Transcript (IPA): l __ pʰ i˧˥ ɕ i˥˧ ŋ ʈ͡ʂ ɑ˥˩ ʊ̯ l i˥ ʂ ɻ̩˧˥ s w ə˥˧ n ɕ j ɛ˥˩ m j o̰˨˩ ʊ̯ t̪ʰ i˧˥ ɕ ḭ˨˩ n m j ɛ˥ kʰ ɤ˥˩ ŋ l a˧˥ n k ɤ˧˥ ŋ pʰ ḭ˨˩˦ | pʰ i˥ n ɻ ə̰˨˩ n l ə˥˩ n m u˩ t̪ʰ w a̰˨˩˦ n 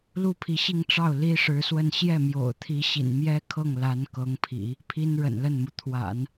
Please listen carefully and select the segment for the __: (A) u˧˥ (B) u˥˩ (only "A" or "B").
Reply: B